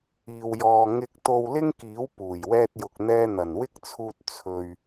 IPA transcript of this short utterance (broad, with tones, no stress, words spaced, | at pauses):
iː˨wjɔː˨ ŋɪ˧k̚ t̪o˧wlɪ˥ŋkiː˨˥w puː˨˩jwɛː˧t̚jʊ˨k̚ n̪ɛː˧ n̪ɐ˨˩nwɪ˥k̚t͡sʰuː˧t̚ t͡sʰɵ˨ɥ